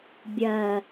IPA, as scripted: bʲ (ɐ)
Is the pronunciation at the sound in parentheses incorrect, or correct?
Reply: correct